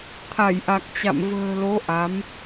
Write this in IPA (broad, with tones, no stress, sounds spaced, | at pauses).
t̪ʰ a˧˩ j ʔ a˨˩ k̚ t͡ɕ a̰˧˨ m v ə̤ː˨˩ l o˨˦ ʔ a˨˦ m